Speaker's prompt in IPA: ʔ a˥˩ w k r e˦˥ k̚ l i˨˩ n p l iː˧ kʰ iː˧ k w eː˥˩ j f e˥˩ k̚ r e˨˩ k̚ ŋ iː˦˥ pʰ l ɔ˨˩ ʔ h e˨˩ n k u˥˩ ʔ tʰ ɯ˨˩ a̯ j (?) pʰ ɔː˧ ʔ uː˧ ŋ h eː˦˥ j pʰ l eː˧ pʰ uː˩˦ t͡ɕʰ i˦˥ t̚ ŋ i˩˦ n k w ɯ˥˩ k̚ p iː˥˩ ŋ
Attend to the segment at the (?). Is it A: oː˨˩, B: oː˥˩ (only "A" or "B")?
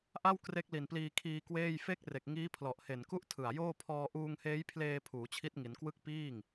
B